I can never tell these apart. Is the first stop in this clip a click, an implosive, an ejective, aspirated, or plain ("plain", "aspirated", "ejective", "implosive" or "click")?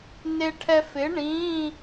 aspirated